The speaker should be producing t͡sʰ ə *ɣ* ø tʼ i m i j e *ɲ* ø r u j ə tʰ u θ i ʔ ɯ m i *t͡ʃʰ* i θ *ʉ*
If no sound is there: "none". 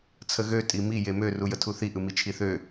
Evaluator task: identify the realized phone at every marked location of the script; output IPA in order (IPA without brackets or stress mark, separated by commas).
ɣ, m, t͡ʃʰ, ø